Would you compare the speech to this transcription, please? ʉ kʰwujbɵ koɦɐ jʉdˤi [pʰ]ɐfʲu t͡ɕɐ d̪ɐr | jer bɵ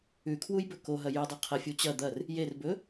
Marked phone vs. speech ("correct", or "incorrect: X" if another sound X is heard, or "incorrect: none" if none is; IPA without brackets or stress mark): incorrect: qʰ